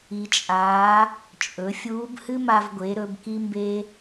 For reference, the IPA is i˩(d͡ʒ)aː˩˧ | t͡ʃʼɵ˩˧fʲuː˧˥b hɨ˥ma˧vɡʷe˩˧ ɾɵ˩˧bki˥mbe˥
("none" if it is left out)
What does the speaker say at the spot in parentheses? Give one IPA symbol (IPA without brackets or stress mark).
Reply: t͡ʃʼ